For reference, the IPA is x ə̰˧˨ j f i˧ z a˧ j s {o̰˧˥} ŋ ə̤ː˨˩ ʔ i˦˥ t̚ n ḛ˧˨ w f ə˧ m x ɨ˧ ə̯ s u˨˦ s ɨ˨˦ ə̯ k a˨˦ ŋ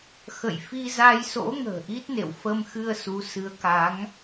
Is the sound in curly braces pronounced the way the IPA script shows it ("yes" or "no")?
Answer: yes